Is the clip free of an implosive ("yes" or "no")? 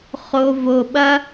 no